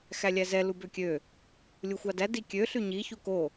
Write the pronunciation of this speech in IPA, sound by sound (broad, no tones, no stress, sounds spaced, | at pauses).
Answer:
x æ lʲ æ z ɛ l u b ø kʲ ø | lʲ u xʷ ɑ d æ d i kʲ ø ɬ y ɲ i ç u k o